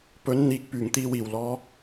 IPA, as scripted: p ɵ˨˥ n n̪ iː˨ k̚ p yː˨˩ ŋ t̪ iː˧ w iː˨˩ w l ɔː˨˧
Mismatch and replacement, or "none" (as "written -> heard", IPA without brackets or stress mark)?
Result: none